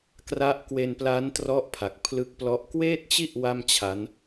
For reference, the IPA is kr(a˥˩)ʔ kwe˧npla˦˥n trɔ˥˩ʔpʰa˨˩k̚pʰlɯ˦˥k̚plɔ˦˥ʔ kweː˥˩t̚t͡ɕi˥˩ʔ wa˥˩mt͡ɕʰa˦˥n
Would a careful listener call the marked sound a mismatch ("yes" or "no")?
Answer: yes